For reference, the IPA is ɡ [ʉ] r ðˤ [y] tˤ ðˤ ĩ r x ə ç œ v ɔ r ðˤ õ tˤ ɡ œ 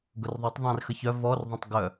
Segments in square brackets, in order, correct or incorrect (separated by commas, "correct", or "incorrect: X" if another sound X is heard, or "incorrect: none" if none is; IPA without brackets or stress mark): incorrect: ʊ, correct